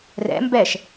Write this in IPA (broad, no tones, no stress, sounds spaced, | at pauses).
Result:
r ɛ̰ m b ɛ ʃ